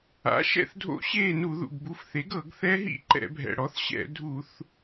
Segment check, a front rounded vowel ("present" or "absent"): absent